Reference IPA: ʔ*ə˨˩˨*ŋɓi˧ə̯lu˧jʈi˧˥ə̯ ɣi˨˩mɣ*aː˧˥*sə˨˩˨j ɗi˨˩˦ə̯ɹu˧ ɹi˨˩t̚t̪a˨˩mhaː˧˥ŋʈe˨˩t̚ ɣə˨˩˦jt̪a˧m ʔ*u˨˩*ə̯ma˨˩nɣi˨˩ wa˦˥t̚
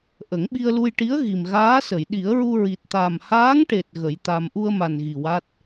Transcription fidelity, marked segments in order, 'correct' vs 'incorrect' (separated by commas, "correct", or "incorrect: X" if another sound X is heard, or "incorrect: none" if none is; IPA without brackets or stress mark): incorrect: ə˨˩˦, correct, incorrect: u˧